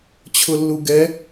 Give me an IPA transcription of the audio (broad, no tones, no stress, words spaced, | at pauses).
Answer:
t͡ɕʰʊlːuɡɛ